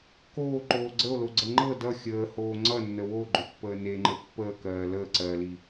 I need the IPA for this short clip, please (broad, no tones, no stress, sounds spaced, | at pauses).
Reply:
k oː ǃ oː ɡ͡ǀ ə o̯ l o ɡ͡ǀ ə ŋ͡ǃ ɤ d ʌ xʲ əː h oː ŋ͡ǀ ʌ nː ə w o ɡ͡ǃ ɵ pː əː n e ŋ͡ǃ ə pː əː k ɜː l əː ǀ ɜː l i